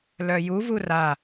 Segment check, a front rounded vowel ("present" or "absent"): present